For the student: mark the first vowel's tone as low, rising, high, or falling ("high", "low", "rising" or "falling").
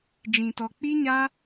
low